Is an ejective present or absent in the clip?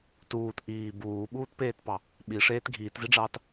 absent